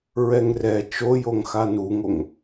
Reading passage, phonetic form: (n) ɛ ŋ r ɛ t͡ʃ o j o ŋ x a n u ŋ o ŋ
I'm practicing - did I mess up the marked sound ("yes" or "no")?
yes